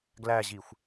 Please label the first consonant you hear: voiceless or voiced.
voiced